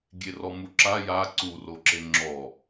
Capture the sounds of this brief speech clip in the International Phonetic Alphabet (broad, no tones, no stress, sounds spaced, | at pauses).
ɡʲ e r ɔ m u ǁ a j a ǀ u r o ǁ e ŋ͡ǁ ɔ